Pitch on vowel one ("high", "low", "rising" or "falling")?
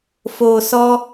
low